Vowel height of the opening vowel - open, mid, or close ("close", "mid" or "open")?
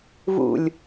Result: close